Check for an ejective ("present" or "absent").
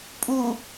present